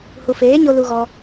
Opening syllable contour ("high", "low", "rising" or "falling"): low